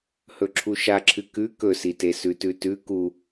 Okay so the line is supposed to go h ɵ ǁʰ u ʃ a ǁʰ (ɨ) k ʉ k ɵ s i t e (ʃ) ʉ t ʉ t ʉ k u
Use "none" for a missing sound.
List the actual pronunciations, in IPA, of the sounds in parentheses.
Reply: ɨ, s

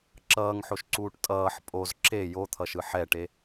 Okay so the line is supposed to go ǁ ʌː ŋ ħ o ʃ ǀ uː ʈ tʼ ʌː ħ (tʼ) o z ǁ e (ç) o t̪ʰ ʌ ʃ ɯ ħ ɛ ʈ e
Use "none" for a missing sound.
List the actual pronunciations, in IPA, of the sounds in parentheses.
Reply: pʼ, j

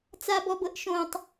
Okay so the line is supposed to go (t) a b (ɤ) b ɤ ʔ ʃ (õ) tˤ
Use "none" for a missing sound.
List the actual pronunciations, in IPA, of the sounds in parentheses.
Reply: t͡s, ɔ, õ

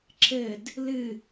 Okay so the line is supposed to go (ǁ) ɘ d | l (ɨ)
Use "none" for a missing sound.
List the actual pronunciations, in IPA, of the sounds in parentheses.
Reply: ǁ, ɨ

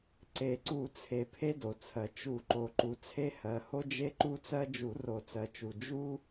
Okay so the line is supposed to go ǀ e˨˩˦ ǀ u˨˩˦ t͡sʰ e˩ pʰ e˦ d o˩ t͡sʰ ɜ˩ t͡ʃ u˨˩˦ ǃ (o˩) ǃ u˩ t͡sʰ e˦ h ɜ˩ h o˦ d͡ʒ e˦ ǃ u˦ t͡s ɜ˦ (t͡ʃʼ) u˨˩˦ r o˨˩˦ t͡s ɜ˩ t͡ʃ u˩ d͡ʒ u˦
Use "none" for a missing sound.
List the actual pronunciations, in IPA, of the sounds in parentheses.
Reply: o˩, d͡ʒ

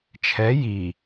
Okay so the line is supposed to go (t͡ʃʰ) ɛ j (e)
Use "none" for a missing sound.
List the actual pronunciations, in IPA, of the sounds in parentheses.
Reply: t͡ʃʰ, i

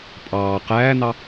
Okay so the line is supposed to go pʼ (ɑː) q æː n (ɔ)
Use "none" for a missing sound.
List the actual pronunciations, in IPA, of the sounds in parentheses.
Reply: ɑː, ɑ

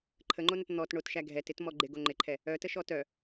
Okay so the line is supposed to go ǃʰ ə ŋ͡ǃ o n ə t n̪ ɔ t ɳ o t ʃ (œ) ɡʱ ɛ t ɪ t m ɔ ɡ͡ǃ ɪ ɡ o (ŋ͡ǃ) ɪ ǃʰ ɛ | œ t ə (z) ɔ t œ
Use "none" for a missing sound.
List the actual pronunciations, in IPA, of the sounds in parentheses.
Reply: æ, ŋ͡ǃ, ʃ

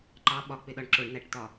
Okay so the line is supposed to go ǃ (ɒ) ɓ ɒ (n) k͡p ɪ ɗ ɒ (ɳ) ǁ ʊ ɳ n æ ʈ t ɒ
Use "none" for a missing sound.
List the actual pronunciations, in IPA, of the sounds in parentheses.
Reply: ɑ, none, ɳ

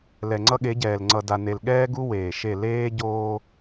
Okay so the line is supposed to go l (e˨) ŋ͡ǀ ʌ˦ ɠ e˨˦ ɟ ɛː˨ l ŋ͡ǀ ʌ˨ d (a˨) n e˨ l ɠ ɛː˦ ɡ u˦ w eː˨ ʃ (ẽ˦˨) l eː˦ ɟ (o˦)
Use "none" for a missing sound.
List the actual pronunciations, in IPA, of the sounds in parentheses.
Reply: ɛ˨, a˨, e˦˨, oː˦

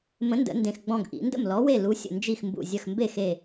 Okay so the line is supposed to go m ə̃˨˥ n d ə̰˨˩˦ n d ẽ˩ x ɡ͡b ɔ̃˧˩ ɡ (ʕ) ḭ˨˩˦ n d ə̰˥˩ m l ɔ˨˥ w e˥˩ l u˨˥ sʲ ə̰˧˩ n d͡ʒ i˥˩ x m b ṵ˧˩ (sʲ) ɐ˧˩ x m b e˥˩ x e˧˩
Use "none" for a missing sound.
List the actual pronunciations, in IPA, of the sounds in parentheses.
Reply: ʔ, zʲ

